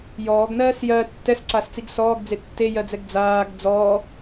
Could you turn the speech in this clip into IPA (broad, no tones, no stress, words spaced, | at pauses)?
jɔːɡnɜːs jɜ tːɛsǀast͡siɡ sɔːɡd͡ze tːejɜd͡zɛɡ d͡zaːɡ d͡zɔː